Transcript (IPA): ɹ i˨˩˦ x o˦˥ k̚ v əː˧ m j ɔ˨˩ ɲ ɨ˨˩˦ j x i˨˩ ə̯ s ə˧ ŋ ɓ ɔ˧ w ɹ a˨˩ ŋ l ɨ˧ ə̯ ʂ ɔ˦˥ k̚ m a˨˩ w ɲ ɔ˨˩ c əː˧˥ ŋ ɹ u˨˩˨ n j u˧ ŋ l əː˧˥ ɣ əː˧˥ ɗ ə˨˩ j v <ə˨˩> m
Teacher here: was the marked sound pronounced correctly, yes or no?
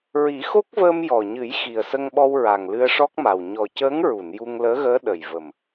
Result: yes